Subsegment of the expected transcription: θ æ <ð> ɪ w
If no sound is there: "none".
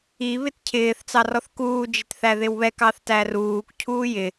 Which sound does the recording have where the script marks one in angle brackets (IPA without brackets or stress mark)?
ð